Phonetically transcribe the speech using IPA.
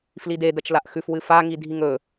f l i d e d ɐ t͡ʃ l a ʔ x ʉ f w ɨ f a ŋ i dʱ i ŋ ɵ

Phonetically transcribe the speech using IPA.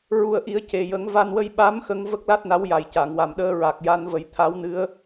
ɹ u˨˩ ə̯ ʔ i˨˩˦ ə̯ c e˨˩ j ə˨˩˦ ŋ v a˧ n w ə˧ j ɓ a˧˥ m x ə˧ ŋ v ə˦˥ k̚ l a˦˥ t̚ n a˧˥ w j a˨˩ j c a˨˩˨ ŋ w a˨˩ m ɗ əː˧ ɹ a˨˩ k̚ j a˧ n v ə˨˩˦ j t̪ʰ a˧˥ w n ɨ˧˥ ə̯

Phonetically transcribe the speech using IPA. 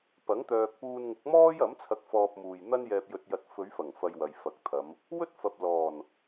p ɐ˨˥ ŋ t̪ œː˨ k̚ p uː˧ n ŋ ʊ˨˥ k̚ m ɔː˥ j ɐ˨˥ m t͡sʰ ɐ˧ k̚ f ɔː˧ p̚ m uː˨ j n̪ ɐ˥ n j ɛː˧ p̚ j ɵ˧ t̚ j ɐ˧ t̚ f ɵ˨˧ ɥ f ɐ˨˩ ŋ f ɐ˧ j w ɐ˨ j f ɐ˨˥ k̚ t̪ʰ ɐ˨˧ m | w ɵ˥ t̚ f ɐ˨ p̚ l ɔː˨˩ n

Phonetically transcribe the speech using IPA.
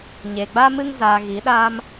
ɲ eː˨ ɡ͡b a˦ m ɨ˦ ŋ z aː˧ ɣ i˨˦ ɗ aː˦ m

